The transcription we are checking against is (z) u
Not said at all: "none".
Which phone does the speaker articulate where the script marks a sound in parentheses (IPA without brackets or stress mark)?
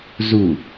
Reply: z